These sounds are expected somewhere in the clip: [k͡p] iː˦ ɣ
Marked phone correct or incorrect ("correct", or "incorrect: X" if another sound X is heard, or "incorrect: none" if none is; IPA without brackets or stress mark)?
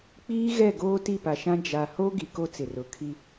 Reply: correct